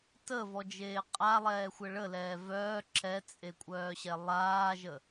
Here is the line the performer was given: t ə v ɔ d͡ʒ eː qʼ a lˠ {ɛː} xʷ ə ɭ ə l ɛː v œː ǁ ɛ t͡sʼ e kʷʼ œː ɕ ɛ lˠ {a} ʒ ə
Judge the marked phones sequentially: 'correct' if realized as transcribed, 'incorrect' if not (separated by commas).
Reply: correct, incorrect